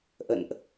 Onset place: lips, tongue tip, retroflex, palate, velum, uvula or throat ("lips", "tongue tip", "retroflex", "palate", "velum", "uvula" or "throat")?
throat